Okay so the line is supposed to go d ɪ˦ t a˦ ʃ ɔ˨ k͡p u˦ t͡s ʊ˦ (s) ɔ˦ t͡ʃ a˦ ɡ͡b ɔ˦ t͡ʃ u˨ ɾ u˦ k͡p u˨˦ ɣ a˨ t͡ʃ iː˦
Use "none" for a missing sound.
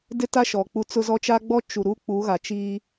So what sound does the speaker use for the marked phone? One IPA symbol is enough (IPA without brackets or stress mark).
z